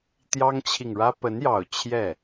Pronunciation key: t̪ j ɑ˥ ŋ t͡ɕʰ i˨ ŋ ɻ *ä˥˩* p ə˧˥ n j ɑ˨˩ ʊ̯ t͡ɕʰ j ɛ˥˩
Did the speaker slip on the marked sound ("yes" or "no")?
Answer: yes